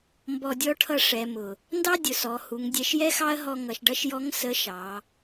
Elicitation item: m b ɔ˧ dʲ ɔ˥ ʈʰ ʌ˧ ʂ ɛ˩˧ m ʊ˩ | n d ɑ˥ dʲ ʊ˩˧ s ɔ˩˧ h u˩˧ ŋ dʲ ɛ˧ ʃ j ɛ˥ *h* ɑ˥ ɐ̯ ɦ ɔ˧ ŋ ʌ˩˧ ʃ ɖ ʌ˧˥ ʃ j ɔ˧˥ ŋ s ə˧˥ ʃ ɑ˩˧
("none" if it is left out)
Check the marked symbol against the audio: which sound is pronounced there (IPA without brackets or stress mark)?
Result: x